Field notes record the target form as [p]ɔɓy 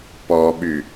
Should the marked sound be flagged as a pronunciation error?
no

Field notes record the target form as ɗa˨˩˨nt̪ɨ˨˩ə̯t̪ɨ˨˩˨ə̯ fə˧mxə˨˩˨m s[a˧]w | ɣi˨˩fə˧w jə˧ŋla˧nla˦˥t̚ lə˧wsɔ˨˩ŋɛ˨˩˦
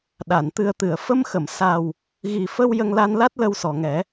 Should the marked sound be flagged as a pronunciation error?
yes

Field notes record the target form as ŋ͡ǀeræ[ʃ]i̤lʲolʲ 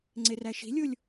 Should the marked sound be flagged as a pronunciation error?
no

